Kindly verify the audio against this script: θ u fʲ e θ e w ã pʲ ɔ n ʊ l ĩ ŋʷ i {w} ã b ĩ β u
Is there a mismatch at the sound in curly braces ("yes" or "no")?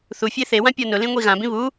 yes